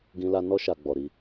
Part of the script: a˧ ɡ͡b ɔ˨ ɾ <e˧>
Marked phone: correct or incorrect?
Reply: incorrect